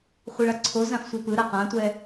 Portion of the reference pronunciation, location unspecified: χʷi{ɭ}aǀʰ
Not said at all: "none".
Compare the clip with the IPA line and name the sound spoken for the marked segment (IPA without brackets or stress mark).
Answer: ɭ